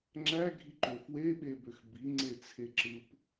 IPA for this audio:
ŋ͡ǁ æ ɡʱ i ǃ ø f w e ɓ e b ø x b i ŋ͡ǀ e t͡sʰ e ǁ ɯ p

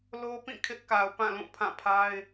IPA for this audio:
l o˦ p ĩ˦˨ kʰ ɪ˦ ʔ k a˨ ʊ̯ p ã˦˨ l ũ˦˨ pʰ ã˦˨ pʰ a˦ ɪ̯

